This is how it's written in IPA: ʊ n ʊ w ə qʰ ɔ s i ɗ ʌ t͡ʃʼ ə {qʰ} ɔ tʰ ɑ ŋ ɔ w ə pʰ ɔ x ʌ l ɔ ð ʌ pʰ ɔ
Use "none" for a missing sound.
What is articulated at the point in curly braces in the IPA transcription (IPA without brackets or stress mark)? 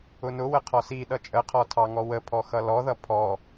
qʰ